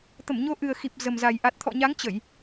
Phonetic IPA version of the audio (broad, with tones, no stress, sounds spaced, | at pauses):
t̪ ə˧˩ m ɲ o˨˦ ʔ ɨ˨˩ ə̯ x i˨˩ p̚ z ə˨˩ m z a˨˩ j ʔ a˨˩ t̚ t̪ʰ ɔ̰˧˨ ɲ a˨˦ ŋ t͡ɕ ə˧˩˨ j